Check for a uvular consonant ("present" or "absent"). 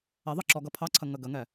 absent